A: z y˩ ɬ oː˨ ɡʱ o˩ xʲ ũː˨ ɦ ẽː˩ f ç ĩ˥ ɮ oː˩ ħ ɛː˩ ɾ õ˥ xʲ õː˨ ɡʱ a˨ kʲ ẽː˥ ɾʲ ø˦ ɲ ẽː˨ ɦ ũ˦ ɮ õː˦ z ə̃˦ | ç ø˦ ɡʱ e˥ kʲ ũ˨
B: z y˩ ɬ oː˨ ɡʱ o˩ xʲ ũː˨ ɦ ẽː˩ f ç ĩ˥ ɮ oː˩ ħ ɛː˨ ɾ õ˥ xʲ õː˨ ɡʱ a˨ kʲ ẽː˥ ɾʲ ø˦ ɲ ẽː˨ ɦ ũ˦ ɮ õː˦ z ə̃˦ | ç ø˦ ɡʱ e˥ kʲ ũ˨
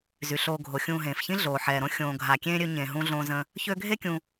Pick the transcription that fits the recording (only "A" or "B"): A